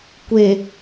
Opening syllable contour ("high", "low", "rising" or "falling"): low